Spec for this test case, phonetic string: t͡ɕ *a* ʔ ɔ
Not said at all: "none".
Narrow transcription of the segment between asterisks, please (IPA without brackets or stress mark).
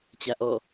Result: a